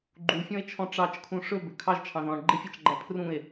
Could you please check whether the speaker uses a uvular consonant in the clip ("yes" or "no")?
no